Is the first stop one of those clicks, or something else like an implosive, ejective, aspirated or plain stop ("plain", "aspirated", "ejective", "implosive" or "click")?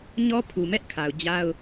aspirated